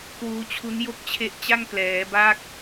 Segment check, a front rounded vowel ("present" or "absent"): absent